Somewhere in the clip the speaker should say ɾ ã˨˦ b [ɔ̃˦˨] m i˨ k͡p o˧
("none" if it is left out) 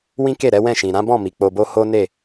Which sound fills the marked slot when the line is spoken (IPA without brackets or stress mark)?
ɔ̃˦˨